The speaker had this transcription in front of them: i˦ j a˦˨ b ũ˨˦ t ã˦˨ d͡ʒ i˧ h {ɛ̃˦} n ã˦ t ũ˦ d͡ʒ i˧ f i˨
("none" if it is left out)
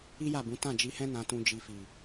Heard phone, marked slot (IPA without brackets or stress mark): ɛ̃˦